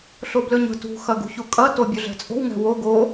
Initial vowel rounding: rounded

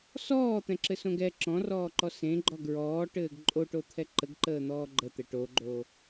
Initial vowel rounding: rounded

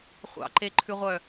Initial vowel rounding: unrounded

